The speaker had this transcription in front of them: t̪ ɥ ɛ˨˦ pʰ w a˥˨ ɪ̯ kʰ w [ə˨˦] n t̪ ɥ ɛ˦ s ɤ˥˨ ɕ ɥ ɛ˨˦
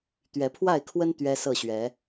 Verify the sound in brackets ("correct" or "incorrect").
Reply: incorrect